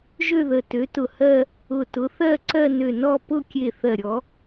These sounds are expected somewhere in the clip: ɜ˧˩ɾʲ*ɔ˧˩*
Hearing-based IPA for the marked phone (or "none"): ɔ˨˦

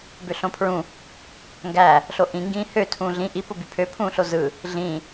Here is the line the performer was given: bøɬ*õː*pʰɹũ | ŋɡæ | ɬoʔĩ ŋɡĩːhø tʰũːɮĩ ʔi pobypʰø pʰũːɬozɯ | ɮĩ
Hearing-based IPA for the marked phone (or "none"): õ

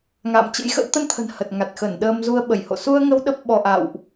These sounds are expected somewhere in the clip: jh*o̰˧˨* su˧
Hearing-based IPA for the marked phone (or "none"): o̰˧˨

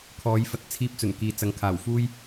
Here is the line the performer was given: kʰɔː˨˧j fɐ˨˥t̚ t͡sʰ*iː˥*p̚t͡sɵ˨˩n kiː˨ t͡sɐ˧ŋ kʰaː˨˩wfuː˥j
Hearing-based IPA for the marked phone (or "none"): iː˥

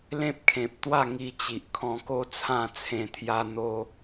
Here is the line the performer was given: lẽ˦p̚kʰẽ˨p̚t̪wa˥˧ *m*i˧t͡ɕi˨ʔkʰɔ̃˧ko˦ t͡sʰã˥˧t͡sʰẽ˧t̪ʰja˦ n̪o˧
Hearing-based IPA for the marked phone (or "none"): ŋ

